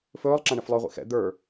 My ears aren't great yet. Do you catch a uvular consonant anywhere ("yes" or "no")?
yes